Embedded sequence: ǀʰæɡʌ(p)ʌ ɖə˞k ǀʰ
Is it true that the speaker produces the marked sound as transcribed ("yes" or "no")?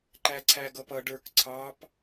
yes